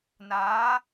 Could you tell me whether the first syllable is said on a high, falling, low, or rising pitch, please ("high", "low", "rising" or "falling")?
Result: rising